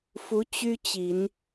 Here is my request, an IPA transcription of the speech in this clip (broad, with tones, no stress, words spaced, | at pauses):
fu˧˥ t͡ɕy˥t͡ɕi˨˩˦n